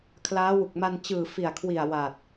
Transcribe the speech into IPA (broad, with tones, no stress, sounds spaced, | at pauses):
kʰ l aː˦˥ w u˨˩ k̚ m a˧ n t͡ɕ ɯː˨˩ f i˨˩ a̯ kʰ w i˨˩ a̯ w a˨˩ t̚